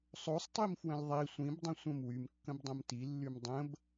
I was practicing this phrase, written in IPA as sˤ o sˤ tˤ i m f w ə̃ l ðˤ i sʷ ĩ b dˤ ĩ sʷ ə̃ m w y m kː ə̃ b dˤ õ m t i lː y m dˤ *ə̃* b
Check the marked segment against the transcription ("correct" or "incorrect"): correct